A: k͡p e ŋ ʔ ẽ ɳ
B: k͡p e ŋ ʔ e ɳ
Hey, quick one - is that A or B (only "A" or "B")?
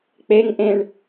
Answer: A